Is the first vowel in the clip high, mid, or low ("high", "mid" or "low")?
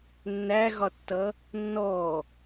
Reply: low